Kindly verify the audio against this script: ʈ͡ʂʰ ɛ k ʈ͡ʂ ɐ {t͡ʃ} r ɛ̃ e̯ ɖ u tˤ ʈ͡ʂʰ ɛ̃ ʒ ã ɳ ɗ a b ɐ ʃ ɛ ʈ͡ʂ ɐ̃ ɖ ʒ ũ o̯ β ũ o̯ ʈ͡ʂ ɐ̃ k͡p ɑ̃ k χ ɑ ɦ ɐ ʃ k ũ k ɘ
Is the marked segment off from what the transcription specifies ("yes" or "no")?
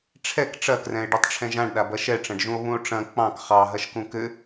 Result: yes